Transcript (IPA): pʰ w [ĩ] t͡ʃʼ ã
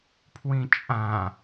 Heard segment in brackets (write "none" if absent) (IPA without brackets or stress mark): ĩ